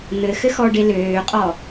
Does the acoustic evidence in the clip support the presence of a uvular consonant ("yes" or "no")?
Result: yes